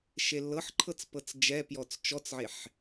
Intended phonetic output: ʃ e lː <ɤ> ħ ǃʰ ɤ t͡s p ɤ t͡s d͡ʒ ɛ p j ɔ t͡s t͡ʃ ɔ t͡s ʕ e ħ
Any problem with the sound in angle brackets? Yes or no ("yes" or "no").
no